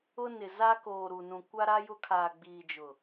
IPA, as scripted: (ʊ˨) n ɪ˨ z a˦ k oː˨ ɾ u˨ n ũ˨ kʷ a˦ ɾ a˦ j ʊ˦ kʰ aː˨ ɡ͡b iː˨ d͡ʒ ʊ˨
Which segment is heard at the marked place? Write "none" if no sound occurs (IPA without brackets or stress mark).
ʊ˦